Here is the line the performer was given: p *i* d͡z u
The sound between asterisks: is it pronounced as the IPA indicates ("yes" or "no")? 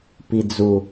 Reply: yes